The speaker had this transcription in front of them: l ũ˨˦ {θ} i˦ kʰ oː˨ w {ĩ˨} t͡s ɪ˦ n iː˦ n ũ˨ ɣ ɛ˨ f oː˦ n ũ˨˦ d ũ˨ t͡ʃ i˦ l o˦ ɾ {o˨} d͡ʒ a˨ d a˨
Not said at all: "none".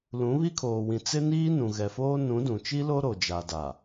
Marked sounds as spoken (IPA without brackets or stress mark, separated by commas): β, ĩ˨, o˨